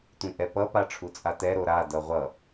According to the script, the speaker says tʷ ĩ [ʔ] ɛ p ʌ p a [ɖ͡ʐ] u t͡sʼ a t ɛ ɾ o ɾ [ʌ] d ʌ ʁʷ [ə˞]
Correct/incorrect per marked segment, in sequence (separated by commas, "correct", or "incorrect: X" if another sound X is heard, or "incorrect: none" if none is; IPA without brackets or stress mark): correct, incorrect: ʈ͡ʂʰ, incorrect: a, incorrect: ʌ